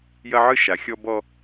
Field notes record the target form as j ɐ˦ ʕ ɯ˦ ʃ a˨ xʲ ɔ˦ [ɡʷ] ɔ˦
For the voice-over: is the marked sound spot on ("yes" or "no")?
no